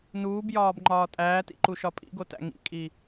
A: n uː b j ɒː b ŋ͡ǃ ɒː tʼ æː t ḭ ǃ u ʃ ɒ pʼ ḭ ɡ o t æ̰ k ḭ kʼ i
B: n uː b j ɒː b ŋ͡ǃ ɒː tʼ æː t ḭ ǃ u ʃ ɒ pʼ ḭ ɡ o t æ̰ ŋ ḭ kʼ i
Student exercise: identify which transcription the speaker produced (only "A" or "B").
B